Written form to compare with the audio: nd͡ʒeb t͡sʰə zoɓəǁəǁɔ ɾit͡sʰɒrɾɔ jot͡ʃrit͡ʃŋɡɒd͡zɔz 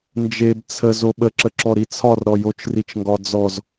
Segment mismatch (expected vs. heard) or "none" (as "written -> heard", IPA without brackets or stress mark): none